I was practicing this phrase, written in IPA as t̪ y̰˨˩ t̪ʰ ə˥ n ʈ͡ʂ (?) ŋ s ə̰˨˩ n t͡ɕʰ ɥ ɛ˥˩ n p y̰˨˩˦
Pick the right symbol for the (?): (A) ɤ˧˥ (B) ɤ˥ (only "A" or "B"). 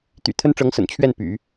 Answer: A